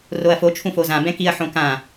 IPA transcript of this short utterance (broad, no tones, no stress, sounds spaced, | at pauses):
r o ɐ̯ f o t͡ʃʰ ũ f o z ã b ɛ̃ k i ɐ̯ ħ õ k ã